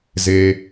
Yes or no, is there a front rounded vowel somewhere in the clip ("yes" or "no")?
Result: no